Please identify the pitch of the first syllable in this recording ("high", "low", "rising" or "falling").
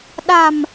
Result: low